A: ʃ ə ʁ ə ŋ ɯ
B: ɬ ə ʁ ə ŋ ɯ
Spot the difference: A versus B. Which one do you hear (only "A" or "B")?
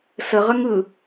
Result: B